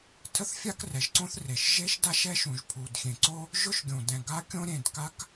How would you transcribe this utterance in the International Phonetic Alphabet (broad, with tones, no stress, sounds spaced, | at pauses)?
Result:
tʰ ə˥ θ fʲ a˥ k r ɛ˩ ʒ ǀ õ˥ θ r e˩ ʃ ʒ e˥ ʃ d a˥ ʃ ɛ˥ ʃ ũ˩ ʒ pʰ u˩ d xʲ ẽ˩ ǀ o˥ | ʒ ʊ˥ ʃ ɡʲ õ˩ d ɛ̃˩ ɡ a˥ kʲ õ˥ ɾʲ ẽ˩ d k a˥ k